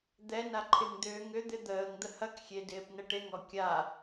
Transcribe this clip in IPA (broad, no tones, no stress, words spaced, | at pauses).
d̪ɛna ǃʰɪŋd̪ʏː ŋʏd̪ɪ d̪əːŋd̪ə hɐkxʲedɪːpnə ʈeŋɔ kʲa